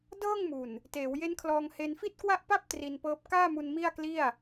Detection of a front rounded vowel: absent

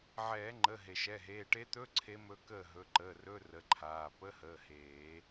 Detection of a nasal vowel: absent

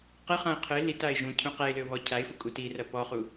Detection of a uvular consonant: present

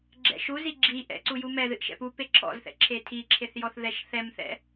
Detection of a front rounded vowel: absent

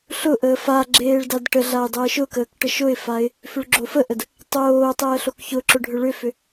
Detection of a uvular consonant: absent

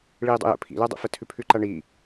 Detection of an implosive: absent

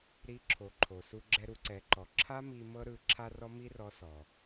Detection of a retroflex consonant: absent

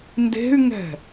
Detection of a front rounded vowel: present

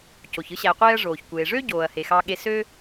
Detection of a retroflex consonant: present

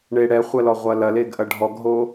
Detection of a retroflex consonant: present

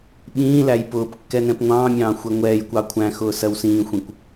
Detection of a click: absent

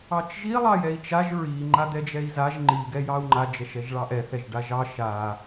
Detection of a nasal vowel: absent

